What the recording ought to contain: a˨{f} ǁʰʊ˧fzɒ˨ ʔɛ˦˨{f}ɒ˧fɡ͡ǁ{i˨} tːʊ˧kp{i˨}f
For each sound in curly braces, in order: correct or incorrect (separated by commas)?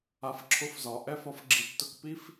correct, correct, correct, incorrect